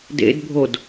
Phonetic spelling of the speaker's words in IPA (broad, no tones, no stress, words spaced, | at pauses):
dḛdbʱod